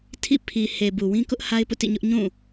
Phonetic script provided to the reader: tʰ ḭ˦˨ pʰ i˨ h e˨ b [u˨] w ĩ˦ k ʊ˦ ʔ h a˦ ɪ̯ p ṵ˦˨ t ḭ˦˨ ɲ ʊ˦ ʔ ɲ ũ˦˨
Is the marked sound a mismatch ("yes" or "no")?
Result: no